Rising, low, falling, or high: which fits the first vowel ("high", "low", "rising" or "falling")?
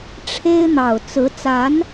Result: high